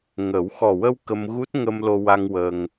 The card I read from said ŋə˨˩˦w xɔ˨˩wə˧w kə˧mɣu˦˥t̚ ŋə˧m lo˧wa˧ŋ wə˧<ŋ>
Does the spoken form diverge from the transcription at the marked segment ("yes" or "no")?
no